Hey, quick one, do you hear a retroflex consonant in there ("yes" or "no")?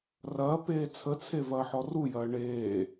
yes